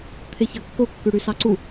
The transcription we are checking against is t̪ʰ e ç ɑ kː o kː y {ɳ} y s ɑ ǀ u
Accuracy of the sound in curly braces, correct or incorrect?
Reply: incorrect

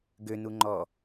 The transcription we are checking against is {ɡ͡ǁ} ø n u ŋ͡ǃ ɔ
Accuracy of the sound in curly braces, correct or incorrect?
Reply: incorrect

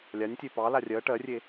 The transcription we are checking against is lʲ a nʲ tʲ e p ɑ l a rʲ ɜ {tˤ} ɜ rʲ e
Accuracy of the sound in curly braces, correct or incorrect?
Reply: incorrect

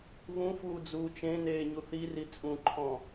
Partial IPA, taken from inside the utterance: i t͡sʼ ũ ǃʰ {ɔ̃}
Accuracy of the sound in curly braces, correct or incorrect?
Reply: correct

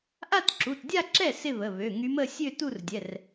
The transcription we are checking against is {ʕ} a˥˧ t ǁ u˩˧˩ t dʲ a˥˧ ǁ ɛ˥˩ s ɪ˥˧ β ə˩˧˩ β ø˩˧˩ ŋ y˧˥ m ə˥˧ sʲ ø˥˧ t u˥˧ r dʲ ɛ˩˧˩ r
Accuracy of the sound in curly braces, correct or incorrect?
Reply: incorrect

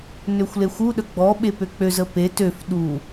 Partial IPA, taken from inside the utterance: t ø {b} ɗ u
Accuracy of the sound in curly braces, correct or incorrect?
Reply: incorrect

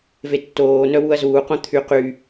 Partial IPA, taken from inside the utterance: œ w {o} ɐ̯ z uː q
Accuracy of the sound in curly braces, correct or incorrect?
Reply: incorrect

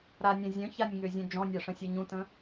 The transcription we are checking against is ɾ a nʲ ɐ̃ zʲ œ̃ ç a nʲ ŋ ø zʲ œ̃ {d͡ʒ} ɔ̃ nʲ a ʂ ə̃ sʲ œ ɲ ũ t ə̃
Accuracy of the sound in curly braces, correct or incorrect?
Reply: correct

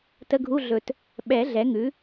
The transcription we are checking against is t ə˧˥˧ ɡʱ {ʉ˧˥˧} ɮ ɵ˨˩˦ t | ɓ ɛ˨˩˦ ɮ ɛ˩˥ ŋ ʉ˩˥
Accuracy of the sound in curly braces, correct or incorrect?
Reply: incorrect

